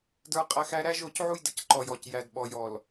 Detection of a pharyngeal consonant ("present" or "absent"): present